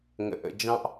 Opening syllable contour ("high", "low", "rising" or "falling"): low